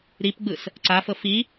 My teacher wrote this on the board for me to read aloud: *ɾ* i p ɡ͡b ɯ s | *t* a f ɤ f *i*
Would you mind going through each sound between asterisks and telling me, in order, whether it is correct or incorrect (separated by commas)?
correct, incorrect, correct